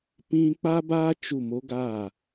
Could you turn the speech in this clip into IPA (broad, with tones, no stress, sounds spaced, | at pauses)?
p ĩ˦ k͡p a˦ b aː˦ t͡ʃ u˦˨ m o˦ ɡ a˦˨